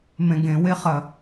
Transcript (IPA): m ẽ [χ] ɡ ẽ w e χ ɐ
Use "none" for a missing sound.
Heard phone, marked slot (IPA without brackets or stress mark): none